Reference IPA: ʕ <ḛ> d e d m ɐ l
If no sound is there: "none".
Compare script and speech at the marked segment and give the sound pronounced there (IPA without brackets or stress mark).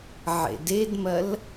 ḛ